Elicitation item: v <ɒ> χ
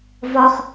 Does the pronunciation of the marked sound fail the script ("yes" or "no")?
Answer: no